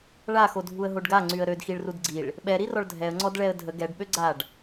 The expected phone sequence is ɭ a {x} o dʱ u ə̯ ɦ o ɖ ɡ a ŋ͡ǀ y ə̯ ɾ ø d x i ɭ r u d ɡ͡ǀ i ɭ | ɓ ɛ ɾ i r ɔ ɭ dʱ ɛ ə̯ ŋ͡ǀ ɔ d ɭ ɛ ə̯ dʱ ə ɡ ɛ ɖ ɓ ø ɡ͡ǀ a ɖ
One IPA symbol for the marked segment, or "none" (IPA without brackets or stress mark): x